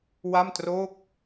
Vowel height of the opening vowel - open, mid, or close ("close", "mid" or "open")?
open